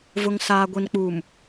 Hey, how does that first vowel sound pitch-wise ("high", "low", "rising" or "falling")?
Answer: low